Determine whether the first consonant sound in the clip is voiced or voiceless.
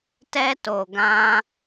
voiceless